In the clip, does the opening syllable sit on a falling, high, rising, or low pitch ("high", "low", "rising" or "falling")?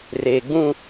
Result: low